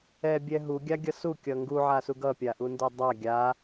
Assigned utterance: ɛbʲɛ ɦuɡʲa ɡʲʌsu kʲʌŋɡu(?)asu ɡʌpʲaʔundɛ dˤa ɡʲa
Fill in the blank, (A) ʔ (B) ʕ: B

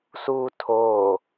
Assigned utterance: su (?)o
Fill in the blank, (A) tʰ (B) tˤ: A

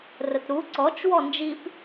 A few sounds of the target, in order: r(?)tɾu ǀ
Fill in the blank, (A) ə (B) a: A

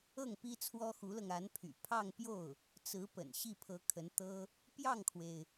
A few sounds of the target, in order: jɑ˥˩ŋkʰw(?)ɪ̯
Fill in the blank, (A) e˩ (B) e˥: A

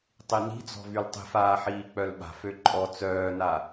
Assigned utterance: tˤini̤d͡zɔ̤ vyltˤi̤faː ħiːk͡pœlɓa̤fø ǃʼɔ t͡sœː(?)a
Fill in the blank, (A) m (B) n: B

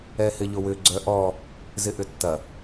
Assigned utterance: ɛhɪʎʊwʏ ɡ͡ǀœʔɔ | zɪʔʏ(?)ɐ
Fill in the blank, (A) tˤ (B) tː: B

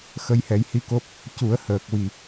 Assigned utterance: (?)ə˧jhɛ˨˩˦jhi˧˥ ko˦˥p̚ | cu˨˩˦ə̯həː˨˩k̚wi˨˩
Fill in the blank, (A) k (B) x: B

